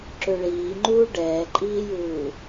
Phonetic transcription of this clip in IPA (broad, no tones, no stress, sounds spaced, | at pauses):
ǁ ø ɭ iː ŋ͡ǃ uː ɖ ɛː ǃʼ iː j uː